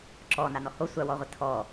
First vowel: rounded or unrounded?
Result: rounded